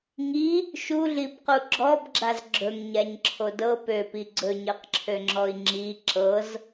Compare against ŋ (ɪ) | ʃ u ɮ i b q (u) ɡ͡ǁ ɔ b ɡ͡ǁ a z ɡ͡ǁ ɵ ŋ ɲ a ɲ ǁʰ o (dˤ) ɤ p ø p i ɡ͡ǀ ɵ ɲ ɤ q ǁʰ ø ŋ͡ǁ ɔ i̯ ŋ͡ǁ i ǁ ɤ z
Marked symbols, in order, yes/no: no, yes, no

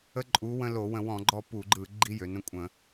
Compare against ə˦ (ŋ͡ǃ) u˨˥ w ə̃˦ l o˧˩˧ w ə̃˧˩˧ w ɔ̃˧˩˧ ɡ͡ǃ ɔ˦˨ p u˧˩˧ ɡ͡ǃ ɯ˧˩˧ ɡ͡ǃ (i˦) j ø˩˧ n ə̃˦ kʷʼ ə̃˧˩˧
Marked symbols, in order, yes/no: no, yes

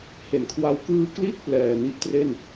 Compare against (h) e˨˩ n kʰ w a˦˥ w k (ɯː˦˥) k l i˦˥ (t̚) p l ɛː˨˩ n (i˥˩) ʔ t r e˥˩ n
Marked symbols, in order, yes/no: yes, no, yes, yes

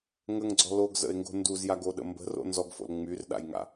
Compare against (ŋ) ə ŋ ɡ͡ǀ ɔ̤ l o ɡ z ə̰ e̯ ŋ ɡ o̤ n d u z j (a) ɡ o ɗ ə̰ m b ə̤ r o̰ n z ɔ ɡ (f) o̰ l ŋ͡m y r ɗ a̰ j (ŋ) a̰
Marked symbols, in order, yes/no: yes, yes, yes, yes

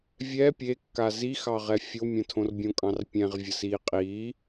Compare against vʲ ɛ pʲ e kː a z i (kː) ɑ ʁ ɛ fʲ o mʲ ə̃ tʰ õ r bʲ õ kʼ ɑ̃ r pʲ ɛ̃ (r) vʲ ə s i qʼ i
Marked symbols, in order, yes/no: no, no

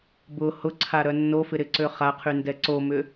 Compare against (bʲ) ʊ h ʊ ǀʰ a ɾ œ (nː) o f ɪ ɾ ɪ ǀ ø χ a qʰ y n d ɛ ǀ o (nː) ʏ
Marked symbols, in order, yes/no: no, yes, no

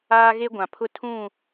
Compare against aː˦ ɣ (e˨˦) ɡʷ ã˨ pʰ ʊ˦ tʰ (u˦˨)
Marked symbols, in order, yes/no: no, no

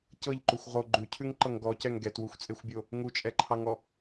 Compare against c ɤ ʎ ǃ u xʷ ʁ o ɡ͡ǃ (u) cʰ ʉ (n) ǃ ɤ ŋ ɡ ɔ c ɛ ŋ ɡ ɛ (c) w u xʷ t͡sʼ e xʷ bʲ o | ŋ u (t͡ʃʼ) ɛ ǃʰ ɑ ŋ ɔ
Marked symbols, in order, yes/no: no, no, no, yes

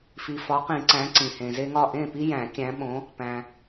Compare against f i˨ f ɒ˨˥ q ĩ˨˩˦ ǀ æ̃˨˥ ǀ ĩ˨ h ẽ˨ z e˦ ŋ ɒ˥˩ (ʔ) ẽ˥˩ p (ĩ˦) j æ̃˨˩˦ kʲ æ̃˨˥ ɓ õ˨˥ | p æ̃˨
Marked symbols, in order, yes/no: yes, no

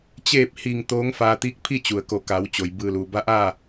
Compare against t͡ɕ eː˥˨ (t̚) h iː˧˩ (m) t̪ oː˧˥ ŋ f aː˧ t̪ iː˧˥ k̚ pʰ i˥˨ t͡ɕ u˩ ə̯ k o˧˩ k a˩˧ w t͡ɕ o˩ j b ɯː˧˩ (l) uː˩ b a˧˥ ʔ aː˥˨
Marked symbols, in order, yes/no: no, no, yes

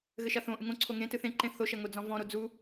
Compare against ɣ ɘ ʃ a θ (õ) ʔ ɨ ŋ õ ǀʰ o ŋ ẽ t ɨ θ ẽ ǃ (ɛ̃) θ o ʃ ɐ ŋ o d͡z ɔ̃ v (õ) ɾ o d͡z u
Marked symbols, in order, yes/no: yes, no, no

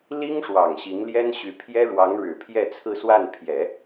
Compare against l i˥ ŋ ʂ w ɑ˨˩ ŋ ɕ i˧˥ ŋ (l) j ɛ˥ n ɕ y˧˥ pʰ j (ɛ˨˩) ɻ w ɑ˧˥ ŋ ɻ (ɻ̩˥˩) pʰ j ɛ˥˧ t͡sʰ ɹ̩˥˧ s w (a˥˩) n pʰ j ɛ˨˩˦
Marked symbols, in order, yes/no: yes, no, no, yes

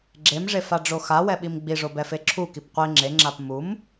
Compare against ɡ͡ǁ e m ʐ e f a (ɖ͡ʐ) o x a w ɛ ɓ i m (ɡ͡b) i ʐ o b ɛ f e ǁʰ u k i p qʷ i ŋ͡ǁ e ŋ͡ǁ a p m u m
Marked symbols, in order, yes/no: yes, yes

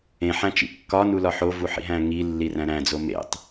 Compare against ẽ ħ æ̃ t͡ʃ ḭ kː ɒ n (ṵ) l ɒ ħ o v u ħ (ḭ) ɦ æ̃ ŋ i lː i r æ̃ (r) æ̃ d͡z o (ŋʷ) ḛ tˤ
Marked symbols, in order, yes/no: no, yes, no, no

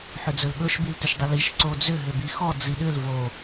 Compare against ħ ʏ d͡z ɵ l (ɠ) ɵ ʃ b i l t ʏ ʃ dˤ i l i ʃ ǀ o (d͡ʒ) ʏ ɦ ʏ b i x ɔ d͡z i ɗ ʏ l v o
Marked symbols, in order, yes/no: yes, no

